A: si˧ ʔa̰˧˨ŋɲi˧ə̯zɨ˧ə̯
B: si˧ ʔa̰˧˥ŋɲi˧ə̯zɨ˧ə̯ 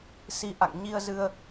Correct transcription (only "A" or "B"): A